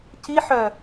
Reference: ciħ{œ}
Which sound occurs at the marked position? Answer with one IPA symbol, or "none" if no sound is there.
œ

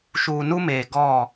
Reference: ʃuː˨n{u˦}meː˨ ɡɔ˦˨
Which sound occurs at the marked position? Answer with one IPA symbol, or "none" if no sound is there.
u˦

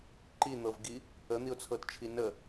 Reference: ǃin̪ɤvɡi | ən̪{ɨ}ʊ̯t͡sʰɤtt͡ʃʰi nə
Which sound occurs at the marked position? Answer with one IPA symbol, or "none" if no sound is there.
i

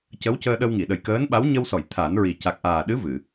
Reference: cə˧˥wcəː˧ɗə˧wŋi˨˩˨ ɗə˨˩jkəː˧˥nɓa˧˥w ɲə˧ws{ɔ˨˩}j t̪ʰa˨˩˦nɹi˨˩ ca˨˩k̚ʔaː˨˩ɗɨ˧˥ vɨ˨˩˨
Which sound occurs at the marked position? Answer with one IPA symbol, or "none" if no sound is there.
ɔ˨˩˨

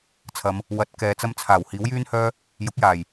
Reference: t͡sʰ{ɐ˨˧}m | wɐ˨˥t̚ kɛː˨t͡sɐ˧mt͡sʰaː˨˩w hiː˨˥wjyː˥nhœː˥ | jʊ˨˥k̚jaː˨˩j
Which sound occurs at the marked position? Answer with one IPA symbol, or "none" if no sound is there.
ɐ˨˧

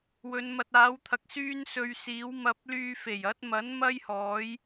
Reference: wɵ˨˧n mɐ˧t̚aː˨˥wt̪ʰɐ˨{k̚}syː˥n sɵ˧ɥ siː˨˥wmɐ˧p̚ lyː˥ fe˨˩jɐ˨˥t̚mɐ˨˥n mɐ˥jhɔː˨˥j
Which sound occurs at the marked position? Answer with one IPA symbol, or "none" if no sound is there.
k̚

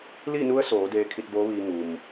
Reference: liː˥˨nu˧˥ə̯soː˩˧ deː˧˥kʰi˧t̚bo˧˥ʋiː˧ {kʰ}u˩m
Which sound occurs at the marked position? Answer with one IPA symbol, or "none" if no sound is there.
ŋ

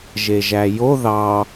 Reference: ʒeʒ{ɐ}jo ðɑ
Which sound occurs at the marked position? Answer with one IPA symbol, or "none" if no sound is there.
æ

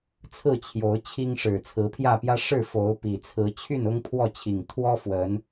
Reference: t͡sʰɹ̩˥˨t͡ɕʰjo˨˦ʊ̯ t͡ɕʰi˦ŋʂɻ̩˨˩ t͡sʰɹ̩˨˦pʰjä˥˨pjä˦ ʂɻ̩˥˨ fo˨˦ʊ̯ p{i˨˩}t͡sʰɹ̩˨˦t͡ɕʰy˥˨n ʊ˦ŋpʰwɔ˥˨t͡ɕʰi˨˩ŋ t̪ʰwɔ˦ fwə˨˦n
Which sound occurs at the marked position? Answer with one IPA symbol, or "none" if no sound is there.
i˨˩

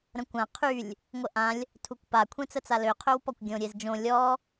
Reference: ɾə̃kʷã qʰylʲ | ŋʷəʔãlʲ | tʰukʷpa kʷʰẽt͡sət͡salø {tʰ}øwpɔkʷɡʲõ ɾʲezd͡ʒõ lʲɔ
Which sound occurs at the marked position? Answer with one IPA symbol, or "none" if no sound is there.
qʰ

